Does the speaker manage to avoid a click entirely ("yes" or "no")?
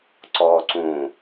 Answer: no